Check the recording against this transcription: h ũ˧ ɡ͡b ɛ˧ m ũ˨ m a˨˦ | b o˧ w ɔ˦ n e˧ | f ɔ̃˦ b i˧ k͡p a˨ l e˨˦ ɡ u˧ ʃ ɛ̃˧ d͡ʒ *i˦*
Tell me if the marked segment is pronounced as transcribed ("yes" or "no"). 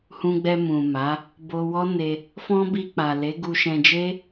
no